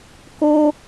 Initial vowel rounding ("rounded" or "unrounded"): rounded